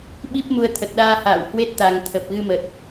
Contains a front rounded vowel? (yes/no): no